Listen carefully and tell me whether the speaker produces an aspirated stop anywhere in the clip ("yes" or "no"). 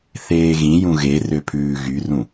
yes